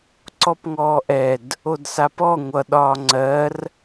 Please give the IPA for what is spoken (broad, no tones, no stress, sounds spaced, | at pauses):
ǀ ɔ p ŋ ɔː ʔ ɛ d | o d s a p ɔ ŋʷ ʌ ɗ ɒː ŋ͡ǀ ɜ r